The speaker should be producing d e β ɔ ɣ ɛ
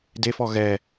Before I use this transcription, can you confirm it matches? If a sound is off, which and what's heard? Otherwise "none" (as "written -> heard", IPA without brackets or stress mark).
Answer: β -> f